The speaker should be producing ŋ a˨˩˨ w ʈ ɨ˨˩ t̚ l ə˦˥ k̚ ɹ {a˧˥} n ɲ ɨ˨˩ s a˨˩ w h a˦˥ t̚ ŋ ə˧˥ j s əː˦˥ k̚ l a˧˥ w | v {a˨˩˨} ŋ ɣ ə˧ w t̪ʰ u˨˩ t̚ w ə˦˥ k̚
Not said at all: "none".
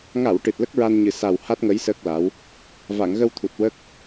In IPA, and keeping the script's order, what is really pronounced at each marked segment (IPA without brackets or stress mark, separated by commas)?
a˧, a˨˩˨